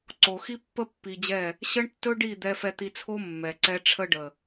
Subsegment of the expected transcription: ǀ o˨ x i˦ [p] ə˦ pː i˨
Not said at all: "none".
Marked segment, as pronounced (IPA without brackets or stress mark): pː